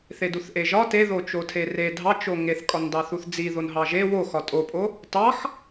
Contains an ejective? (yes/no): yes